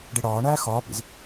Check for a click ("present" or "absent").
absent